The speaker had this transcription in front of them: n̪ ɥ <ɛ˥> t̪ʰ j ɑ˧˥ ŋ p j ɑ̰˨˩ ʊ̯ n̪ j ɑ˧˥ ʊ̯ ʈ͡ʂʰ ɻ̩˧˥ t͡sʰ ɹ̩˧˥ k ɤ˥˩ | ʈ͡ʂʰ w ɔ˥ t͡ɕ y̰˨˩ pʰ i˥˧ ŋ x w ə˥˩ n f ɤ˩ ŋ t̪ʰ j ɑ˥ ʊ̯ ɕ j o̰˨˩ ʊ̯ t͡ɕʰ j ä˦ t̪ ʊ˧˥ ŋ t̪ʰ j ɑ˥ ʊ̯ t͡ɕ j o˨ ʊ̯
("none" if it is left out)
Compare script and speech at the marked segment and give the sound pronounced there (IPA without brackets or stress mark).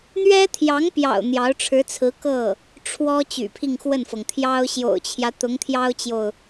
ɛ˥